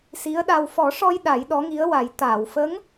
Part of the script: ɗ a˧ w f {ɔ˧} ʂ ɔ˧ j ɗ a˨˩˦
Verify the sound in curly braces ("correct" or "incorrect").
incorrect